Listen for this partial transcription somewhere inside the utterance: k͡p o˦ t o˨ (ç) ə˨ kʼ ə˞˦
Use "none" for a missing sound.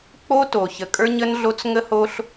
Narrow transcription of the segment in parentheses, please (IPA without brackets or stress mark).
ç